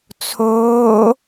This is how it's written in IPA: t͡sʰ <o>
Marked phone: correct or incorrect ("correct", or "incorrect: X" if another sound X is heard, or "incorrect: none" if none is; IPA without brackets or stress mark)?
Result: incorrect: oː